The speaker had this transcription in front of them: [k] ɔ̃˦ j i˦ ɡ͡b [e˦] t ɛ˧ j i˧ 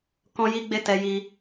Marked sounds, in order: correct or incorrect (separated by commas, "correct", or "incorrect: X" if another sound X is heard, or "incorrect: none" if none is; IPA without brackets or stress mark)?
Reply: correct, correct